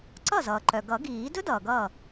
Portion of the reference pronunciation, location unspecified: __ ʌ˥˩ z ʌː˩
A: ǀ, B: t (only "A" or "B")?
A